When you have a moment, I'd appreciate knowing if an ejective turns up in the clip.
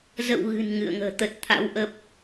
no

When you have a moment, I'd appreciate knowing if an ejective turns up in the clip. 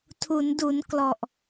no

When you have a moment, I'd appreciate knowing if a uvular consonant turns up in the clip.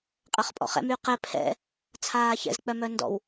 yes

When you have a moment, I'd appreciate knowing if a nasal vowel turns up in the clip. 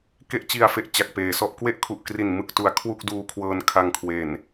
no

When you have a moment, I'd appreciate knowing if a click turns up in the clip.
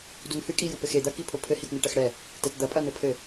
no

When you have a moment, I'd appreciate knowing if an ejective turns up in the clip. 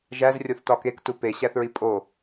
yes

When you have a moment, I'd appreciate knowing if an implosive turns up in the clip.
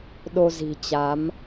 yes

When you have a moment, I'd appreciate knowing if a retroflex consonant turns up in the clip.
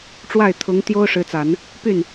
yes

